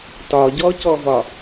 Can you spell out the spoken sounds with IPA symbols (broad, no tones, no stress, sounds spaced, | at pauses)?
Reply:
t ɒ ɟ ɔ c ɔ v ɒ